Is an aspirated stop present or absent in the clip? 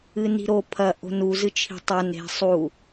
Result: present